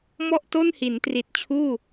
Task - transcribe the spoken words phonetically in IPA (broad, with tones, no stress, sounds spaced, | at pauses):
m ɔ˥˩ ʔ t o˥˩ n h i˩˦ n t r i˨˩ t̚ t͡ɕʰ uː˥˩